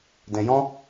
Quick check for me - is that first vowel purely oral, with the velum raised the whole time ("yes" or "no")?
no